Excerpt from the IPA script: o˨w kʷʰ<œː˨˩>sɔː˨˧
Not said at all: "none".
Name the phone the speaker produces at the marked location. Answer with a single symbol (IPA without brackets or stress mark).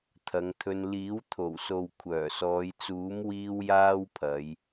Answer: œː˨˩